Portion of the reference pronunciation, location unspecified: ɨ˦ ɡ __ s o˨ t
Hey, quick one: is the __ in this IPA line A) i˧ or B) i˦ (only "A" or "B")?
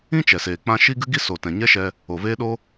B